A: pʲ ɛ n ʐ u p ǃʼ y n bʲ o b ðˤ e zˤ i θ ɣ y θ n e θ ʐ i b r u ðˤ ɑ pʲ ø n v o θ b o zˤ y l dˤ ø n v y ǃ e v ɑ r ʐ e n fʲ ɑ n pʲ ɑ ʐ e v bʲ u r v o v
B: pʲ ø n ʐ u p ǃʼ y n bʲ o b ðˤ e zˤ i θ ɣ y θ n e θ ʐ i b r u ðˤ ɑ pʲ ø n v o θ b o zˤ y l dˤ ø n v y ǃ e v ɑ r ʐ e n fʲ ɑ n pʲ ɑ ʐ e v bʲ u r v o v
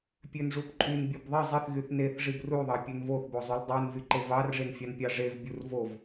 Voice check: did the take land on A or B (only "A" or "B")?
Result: B